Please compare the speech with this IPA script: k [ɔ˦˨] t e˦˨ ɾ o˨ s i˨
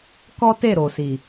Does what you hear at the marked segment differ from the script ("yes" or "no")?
yes